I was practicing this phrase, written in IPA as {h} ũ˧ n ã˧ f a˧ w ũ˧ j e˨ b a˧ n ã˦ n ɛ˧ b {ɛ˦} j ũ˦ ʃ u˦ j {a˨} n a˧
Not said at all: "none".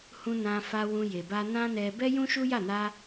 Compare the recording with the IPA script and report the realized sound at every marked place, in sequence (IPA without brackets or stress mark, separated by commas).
h, ɛ˦, a˦˨